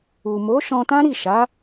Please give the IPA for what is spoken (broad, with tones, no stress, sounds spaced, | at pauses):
u˨ m o˨˦ ʃ ɔ̃˧ t ã˦ ɾ i˦˨ ʃ a˨˦